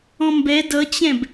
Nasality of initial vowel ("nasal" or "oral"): nasal